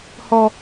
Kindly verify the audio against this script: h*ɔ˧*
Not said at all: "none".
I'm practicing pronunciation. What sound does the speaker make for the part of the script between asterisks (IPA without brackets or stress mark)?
ɔ˧